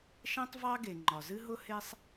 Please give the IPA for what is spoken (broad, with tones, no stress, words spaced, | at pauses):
ʃɛ̃˥tˤvɑ˥ɡe˩ ŋ͡ǃɒ˩zɨ˥ɦʊ˥ he˥sˤ